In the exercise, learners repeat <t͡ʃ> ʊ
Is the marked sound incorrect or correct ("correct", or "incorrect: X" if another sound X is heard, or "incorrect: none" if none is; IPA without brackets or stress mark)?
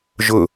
incorrect: ʒ